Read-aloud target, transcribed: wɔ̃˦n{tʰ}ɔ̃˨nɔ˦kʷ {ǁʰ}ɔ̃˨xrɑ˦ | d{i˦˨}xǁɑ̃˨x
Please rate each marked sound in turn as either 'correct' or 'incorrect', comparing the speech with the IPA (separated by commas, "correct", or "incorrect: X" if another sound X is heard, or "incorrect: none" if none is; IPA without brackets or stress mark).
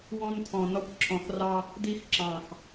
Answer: correct, correct, incorrect: i˦